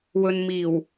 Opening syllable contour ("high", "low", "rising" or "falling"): low